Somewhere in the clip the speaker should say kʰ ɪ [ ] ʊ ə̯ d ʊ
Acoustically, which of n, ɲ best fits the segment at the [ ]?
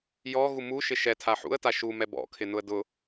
n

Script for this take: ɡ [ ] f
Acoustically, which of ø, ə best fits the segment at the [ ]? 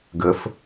ə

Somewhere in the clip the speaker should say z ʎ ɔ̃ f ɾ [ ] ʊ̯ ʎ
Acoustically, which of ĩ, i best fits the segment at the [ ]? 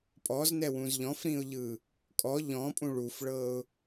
ĩ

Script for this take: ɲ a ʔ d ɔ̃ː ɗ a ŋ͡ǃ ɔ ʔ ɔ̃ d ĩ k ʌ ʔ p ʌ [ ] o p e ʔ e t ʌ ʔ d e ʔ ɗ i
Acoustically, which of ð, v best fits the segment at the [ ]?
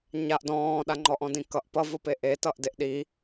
v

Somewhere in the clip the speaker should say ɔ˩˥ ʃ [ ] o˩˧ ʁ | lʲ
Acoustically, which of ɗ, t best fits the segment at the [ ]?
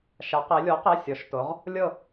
t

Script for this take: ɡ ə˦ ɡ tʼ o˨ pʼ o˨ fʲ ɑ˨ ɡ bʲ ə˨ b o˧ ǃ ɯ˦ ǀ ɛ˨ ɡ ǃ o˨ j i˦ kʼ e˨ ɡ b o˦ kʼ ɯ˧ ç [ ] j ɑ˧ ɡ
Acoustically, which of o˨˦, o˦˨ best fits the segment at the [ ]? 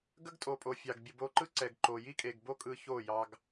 o˦˨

